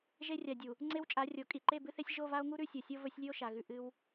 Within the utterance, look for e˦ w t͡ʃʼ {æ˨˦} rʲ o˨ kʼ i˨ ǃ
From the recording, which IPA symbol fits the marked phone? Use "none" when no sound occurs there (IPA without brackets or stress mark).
a˨˦